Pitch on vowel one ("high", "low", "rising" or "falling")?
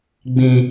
high